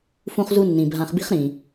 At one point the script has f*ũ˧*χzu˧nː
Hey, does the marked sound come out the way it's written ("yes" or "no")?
yes